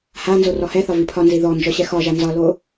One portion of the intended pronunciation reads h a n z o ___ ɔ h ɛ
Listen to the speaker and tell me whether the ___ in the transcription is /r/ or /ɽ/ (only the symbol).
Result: r